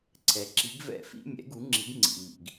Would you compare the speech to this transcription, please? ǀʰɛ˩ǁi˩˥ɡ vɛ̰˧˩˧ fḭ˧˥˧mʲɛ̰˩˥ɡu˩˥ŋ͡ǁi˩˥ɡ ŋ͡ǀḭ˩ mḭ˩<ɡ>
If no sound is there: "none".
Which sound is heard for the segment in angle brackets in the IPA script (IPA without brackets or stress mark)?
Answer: ɡ